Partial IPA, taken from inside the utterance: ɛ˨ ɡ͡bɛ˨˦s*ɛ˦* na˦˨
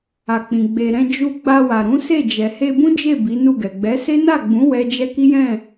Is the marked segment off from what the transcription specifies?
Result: yes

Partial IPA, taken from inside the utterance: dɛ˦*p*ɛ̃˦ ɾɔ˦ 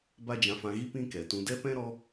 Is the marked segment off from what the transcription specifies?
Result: no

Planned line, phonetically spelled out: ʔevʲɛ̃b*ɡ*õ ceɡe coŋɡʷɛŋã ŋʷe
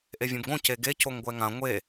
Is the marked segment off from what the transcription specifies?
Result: no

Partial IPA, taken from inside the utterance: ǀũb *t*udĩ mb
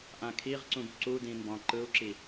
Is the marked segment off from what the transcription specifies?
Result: yes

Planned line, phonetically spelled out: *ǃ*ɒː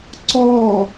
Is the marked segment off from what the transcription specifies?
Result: yes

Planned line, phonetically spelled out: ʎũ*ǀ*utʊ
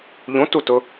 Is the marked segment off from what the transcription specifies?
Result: yes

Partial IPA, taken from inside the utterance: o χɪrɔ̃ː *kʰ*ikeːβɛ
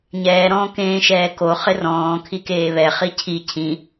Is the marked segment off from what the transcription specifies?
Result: no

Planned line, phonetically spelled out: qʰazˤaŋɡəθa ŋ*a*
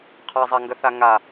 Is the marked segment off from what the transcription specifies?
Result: no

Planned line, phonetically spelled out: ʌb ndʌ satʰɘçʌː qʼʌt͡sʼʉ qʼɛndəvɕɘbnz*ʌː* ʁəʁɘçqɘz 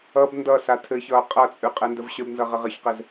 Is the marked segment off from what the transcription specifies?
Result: yes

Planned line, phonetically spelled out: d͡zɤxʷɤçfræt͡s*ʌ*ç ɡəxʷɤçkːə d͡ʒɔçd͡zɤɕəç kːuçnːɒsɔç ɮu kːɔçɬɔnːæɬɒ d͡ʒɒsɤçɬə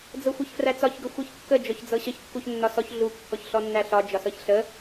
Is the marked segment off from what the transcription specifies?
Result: yes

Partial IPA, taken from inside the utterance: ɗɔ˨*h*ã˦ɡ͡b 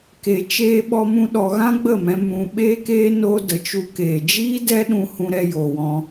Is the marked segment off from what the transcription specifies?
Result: yes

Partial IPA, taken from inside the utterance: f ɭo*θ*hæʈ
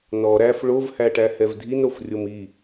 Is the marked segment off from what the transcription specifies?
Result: yes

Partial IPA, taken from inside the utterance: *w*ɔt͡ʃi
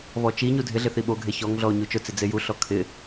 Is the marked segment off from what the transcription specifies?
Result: yes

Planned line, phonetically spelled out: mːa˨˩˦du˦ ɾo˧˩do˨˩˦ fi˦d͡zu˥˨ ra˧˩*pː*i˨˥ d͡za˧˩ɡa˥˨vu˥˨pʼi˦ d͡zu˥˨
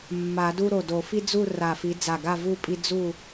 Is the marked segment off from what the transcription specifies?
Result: yes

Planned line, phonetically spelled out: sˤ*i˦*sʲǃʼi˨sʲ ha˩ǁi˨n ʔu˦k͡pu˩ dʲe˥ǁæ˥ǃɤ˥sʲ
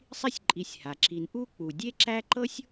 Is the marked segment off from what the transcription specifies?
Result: no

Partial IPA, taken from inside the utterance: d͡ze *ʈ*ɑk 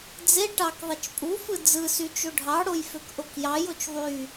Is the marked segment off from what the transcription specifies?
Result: no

